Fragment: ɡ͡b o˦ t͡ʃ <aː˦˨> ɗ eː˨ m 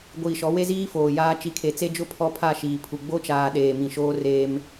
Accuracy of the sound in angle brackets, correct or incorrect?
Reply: incorrect